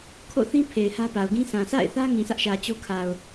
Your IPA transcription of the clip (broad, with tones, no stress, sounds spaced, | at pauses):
kʰ o̰˦˨ θ ĩ˦ pʰ e˨ ɪ̯ h ä˦ p a˨ ʊ̯ ɡ ĩ˦ sʰ ã˨ sʰ a̰˦˨ ɪ̯ θ ä˦ ŋ ĩ˨ s ä˦ ʔ ʃ ä˨ t͡ɕ o˦ kʰ a˨ ʊ̯